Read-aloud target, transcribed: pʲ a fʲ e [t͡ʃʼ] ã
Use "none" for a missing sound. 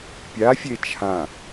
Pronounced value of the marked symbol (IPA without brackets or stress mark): t͡ʃʰ